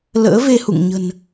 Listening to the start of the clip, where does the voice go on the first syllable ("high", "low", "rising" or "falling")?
rising